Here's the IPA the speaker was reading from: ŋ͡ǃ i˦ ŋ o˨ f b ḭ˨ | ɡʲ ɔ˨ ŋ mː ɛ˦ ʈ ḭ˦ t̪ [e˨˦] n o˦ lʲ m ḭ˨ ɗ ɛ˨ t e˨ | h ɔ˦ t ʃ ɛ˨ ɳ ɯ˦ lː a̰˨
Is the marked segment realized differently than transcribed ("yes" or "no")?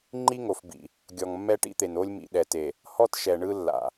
yes